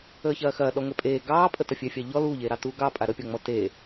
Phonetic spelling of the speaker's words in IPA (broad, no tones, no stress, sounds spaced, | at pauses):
əː ç ɐː x ɐː ɗ ɔ ŋʷ ɛ pʼ eː ɡ ɑː pʼ ə t ɐ fʲ ɛ fʲ ɑ ʎ ɔ l uː ʎ eː ɾ ɑ t uː ɡ ɑ pʼ a ɾ ə pʲ ɔ ŋ͡m ɔ t e